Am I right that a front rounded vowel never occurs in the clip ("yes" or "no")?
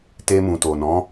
yes